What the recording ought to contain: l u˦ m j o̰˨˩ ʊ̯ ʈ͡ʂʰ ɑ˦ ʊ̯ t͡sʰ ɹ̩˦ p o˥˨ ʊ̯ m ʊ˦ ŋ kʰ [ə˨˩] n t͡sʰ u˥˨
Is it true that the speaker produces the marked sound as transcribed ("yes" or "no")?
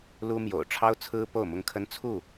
no